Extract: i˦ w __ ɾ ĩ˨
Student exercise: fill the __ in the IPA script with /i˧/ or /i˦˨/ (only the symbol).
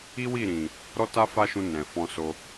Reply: i˦˨